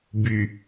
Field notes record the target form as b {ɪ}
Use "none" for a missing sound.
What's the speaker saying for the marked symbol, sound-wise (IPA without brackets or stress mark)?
y